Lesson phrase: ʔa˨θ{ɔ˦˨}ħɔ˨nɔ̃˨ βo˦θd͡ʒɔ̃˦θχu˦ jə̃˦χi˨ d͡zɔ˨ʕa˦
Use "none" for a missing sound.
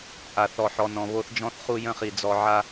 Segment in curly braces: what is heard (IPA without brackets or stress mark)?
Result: ɔ˨